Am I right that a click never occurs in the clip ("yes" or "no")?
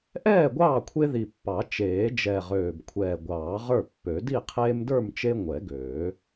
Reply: yes